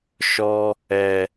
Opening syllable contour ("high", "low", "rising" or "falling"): high